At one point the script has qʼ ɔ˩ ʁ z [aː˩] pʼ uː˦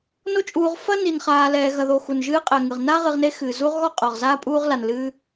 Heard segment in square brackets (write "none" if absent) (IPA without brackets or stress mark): aː˥